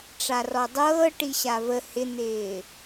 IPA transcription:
ʈ͡ʂ a r ɔ dˤ ɤː ʈ i ɕ a v ə h ɪ n̪ ɪː

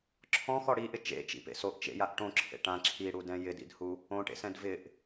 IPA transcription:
ǁʰ ɔ̃ x ɔ ɽ i ʔ ɪ t͡ʃ ḛ t͡ʃ ḭ p ḛ s o ʔ t͡ʃ ḛ j a ʔ ʈ õ ǁʰ ḛ ʈ ã ǁʰ i ɽ u d ɛ̃ j ɪ d ḭ d h u | õ ʈ ḛ s ɛ̃ d v ɪ ʔ

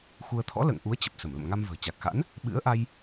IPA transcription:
x u˧ ə̯ t̪ʰ ɔ̰˧˥ l ə̰ː˧˨ ŋ ʔ u˨˦ ə̯ t͡ɕ ə˨˩ p̚ s ə˧˩ m l ə̰˧˨ m ŋ a˧ m v ə̤ː˨˩ t͡ɕ a˨˩ k̚ x a̰˧˥ n | ɓ ɨ̰˧˥ ə̯ ʔ a˧ j

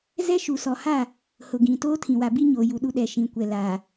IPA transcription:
z ɛ˦ ʃ u˨ s ɔ˨ h a˦˨ | h ʊ˨ ɡ ĩ˨ t oː˦ tʰ ĩ˨ w a˨ b i˦ ɲ oː˨ j u˨ ɗ u˦ ɗ ɛ˨ ʃ ĩ˨ kʷ ɛ˨ l a˨

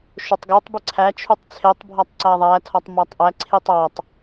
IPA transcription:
ʃ o tˤ ɡ o tˤ b i ǀʰ æ t͡ʃʰ u tˤ t͡sʰ e tˤ bʱ ɒ tˤ ǀ æ ðˤ æ tʰ ɒ tˤ m æ tˤ ʔ æ ǀʰ i tˤ ɒ tˤ

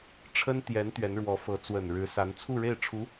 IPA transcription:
ʈ͡ʂʰ ə˥ n t̪ j ɛ˧˥ n t̪ ɥ ɛ˧˥ n ɻ w ɔ˧˥ f ɤ˧˥ t͡s w ə˨˩ n ɻ ɻ̩˧˥ s a˧˥ n t͡sʰ u˥˧ ɻ e˥˩ ɪ̯ ʈ͡ʂʰ u˧˥

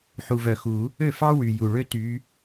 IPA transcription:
ħ u˨ v œ˨ x u˨˩˦ | ø˥˨ f ɑ˥ w y˨ j u˨ ɭ ø˥ t y˨˦

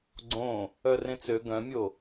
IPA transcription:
ɡ͡ǀ õ | œ r ẽ t͡s ø ɡ œ̃ mʲ o

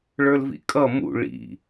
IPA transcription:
ɭ ə˞ l v ḭ kʼ ʌ m ṵ ɭ ḭ

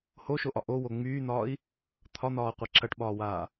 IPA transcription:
h o ʃ o ʔ ɒ ʔ o w o ŋ͡m yː n̪ ɒː i̯ | t̪ʰ ɒ n̪ ɒː qʷ ɐ ǁ ɐ ʈ ɓ ɒː w aː

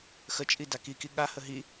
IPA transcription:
x ə t͡ʃʼ i d a k i k i ɠ a h ə ɦ i

